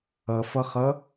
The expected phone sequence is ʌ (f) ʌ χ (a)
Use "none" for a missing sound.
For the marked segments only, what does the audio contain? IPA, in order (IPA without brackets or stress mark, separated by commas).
f, ʌ